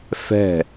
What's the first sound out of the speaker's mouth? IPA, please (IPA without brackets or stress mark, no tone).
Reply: f